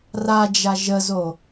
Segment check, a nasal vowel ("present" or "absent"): absent